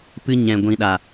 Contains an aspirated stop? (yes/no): no